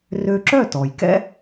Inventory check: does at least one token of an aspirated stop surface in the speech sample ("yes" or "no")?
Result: no